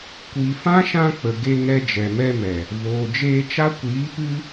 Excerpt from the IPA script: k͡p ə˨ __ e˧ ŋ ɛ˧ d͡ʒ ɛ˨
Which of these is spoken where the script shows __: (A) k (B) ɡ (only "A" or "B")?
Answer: B